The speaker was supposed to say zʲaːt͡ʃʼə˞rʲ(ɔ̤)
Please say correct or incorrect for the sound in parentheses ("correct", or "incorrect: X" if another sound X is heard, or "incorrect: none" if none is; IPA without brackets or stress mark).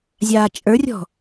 correct